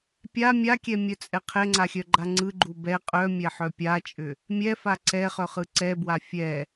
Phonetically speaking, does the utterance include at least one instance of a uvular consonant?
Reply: yes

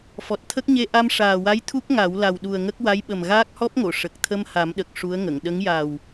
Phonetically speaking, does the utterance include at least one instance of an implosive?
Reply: yes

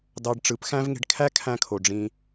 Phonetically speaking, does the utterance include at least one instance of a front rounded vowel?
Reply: no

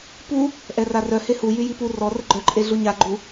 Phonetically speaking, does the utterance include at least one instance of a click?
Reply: yes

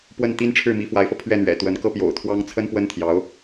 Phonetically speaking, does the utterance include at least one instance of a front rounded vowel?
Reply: no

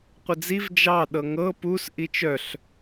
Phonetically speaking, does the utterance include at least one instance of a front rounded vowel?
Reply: yes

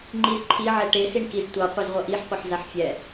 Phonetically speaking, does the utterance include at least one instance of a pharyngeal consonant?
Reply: yes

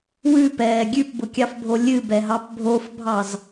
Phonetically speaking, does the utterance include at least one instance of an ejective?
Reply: no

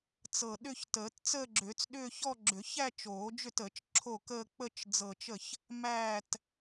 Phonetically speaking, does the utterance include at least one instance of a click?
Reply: yes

